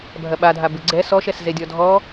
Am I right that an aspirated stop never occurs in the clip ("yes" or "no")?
yes